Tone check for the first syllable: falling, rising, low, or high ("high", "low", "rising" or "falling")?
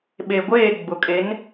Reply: low